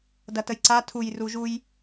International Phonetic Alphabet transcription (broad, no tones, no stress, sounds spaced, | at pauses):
d ɐ t ə j ǀ a tʰ u j r u ʒ u j